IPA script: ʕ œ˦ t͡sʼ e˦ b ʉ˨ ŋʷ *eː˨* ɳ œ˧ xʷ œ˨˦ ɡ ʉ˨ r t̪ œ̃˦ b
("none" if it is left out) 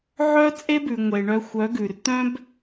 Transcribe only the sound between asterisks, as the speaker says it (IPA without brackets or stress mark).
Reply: e˨